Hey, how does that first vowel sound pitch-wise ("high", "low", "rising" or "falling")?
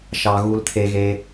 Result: low